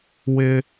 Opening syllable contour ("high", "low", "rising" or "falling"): high